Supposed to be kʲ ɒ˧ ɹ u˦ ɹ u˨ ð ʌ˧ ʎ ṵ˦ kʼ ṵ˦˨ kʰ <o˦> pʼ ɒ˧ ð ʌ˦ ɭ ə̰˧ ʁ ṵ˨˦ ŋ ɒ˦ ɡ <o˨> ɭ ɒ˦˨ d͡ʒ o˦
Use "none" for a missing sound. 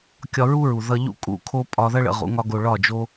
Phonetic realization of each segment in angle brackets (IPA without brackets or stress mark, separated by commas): o˦, o˧